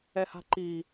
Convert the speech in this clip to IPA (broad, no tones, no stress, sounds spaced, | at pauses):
ɛ h a̤ ǃ i